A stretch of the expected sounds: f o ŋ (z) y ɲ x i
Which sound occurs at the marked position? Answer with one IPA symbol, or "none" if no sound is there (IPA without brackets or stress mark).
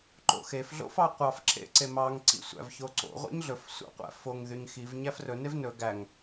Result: ð